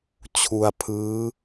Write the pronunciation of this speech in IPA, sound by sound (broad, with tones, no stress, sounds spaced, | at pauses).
t͡ɕʰ u˧ a̯ pʰ ɯː˦˥